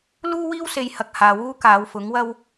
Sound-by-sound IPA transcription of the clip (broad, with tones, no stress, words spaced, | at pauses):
luː˥wiː˥wse˨jhɐ˨k̚ haː˨wuː˥ kaː˨˧wfʊ˨˥ŋ wɐ˥w